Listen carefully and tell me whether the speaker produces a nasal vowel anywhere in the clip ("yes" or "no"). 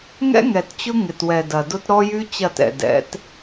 no